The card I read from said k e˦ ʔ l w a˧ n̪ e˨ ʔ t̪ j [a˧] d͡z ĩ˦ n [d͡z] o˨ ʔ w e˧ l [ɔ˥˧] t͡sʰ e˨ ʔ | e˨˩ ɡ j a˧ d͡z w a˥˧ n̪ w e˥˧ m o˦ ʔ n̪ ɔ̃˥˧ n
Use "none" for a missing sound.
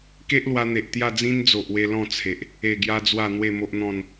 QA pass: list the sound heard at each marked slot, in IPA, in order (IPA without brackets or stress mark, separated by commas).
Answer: a˥˧, d͡z, ɔ̃˥˧